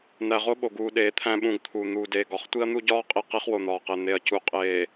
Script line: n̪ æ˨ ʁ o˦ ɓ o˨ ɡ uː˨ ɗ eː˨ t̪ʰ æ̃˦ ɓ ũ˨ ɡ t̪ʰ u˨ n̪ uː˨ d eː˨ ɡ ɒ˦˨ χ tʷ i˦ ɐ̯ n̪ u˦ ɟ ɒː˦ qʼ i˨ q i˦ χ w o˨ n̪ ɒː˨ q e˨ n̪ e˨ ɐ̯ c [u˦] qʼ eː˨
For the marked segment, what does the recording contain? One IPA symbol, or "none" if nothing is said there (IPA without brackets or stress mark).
u˨